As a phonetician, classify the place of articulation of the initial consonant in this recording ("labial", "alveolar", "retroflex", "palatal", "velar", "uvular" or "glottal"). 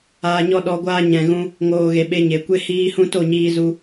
palatal